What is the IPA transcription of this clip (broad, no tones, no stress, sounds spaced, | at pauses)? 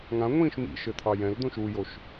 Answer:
ŋ ã ŋʷ ĩː ʃ m ḭ ʃ ɘ t̪ʰ ɑ j ɛ̃ l d̪ õ ʃ u j o ʃ